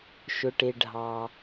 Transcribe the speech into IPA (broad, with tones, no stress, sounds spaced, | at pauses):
ʃ ʊ˩ ʈ e˩ ɖʱ ɑ˩